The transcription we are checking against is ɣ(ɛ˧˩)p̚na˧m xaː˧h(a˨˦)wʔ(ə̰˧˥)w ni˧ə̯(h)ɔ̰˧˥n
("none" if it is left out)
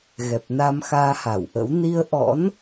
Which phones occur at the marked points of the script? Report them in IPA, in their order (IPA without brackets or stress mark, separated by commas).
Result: ɛ˨˩, a˧˩, ə̰˧˥, ʔ